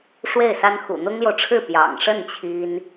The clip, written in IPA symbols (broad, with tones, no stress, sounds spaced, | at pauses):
ʂ w e˥˩ ɪ̯ s a˥ n x ṵ˨˩ n̪ ʊ˥ ŋ l j o˨ ʊ̯ ʈ͡ʂʰ ɻ̩˥˩ p j ɑ̰˨˩ ŋ ʂ ə˥˩ n t͡ɕʰ i˥ n